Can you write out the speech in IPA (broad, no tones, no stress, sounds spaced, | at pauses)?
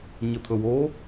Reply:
ɲ ə t̪ʰ ɵ w o